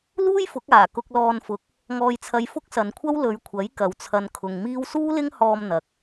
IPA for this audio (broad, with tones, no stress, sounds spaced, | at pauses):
l uː˥ j f ʊ˨˥ k̚ aː˨˩ k ʊ˧ k̚ l ɔː˧ n f ʊ˨˥ k̚ | ŋ ɔː˧ j t͡sʰ ɐ˧ j f ʊ˥ k̚ s ɐ˨ n kʷʰ ɐ˥ w l ɵ˨˧ ɥ kʷʰ ɐ˨˥ j k ɐ˨ w t͡sʰ ɐ˧ n kʰ ʊ˨ ŋ m iː˥ w s uː˥ l ɪ˥ ŋ h ɔː˧ m n̪ ɐ˨ k̚